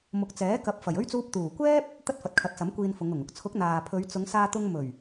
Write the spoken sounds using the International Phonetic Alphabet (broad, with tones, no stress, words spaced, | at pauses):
mʊ˨˥k̚t͡sɛː˨˥ kɐ˨˥p̚fɐ˨˩jɵ˥ɥt͡suː˧p̚ t̪uː˨˩kʷɛː˥p̚ | t̪ɐ˥t̚fɐ˨˥t̚kʰɐ˨˥t̚sɐ˨˥m kʷiː˧nfʊ˨˧ŋʊ˨˩ŋ ʊ˨k̚t͡sʰʊ˨˥k̚ n̪aː˨pʰɵ˨˧ɥ t͡sʊ˨˧ŋsaː˧t̪ʊ˧ŋ mɵ˨˩ɥ